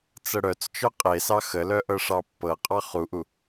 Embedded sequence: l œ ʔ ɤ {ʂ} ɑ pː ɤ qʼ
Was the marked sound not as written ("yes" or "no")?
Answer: no